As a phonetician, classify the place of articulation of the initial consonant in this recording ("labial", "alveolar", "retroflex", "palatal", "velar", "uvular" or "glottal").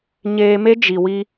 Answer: palatal